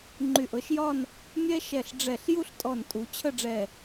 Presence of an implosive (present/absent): absent